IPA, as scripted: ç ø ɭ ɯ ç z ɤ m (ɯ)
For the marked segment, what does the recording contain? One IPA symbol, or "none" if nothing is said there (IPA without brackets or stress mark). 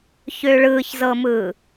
ɯ